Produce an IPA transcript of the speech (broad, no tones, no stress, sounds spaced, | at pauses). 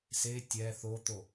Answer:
s e tʲ ɛ θ o t̪ o